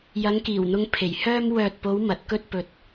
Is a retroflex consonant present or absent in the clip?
absent